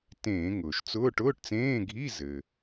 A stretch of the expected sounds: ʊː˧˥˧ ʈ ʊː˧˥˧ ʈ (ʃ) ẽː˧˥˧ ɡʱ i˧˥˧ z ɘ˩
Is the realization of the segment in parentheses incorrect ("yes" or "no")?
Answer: yes